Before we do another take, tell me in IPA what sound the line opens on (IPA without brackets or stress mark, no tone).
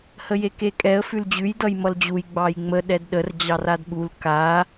h